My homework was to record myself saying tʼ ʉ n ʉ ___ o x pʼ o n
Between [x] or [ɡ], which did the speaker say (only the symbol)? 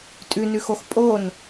x